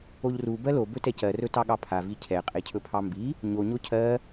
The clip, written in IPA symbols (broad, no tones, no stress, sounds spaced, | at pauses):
o ʎ r u b ɜ l o b ɵ t ɛ c ɜ r ɵ t ɑ ɠ ɑ pʰ a v i cʰ ɛ qʼ e cʰ ɵ pʰ ɑ m b i | ɲ o ɲ o cʰ ɜ